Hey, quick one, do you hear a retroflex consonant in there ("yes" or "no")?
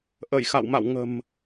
no